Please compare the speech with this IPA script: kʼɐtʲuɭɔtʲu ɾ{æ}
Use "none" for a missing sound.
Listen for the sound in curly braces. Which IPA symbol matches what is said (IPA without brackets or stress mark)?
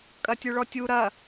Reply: ɐ